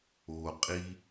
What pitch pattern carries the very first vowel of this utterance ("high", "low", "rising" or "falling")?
low